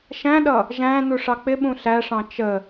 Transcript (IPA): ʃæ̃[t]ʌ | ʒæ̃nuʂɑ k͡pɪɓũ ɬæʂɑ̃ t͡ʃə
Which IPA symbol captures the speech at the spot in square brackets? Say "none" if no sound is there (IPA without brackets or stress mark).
ɗ